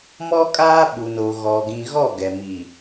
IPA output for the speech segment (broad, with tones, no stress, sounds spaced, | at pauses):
m ɔ˦ kʼ aː˦ ɓ u˨ n o˨ ɣ ɔ˨ ɡ ĩ˨ ɣ ɔ˦˨ ɡ ɛ˨ m i˨